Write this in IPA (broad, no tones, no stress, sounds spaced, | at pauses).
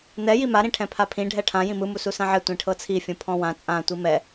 n̪ ɛ j i m a ɾ ĩ ʈʰ ɛ̃ pʰ a pʰ ĩ ɖʱ ɛ ʈʰ ã j ĩ m ɯ m u s u s ã ʕ ɛ tʷ ĩ ʈʰ ɤ t͡sʰ i fʲ ũ pʰ ɔ̃ w ã t͡sʼ ã tʷ i m ɛ